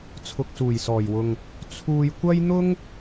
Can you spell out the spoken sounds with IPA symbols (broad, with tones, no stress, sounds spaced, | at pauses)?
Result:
t͡sʰ ʊ˨ k̚ s uː˨˩ j s ɔː˨˩ j w ʊ˨ ŋ | t͡sʰ uː˧ j kʷ ɐ˥ j n̪ ʊ˥ ŋ